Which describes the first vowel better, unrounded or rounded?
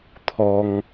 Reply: rounded